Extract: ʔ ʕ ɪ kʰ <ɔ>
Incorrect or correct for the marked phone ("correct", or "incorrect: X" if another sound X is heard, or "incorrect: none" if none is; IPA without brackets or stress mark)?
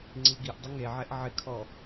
correct